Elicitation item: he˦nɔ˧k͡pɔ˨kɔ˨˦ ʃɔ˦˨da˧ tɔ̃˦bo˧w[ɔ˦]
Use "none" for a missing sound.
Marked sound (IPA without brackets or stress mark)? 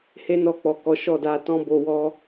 ɔ˦